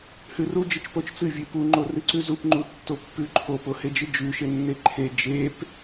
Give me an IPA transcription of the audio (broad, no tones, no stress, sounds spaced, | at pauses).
h ʉ r u d͡ʒ ɨ t͡ʃ p o t͡ʃ t͡s ɨ vʲ ʉ p u ŋ͡ǃ o r ʉ ǀ ʉ z u p ŋ͡ǃ u tː o pː ʉ ǃʰ o p o h e d͡ʒ ɨ d͡ʒ ʉ ʃ e nː e ǃʰ e d͡ʒ e p